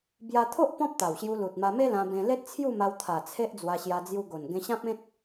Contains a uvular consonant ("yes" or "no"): no